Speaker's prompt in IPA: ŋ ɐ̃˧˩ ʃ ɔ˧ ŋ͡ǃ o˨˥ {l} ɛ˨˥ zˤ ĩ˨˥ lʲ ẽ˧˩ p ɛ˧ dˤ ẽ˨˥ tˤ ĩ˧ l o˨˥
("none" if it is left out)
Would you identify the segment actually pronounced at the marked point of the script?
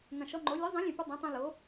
lʲ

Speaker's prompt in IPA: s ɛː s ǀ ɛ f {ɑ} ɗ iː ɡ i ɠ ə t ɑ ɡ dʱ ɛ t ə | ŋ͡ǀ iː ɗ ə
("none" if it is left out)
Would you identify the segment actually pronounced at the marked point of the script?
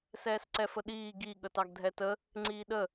ə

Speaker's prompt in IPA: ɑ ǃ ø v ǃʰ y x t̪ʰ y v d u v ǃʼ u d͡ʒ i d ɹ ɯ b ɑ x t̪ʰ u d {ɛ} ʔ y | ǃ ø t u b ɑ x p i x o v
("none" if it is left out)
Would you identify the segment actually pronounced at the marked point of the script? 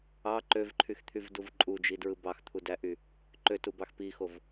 æ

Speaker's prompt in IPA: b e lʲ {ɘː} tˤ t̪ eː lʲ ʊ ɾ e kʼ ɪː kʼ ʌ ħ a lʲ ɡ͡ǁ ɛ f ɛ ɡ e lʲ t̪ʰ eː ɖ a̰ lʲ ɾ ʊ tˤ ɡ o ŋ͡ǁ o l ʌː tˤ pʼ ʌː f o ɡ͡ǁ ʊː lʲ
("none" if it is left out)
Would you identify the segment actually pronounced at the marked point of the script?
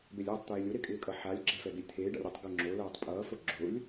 ɘː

